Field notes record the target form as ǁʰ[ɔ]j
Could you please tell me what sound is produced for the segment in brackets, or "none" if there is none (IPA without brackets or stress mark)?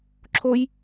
o